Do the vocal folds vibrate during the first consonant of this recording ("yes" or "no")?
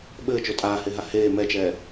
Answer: yes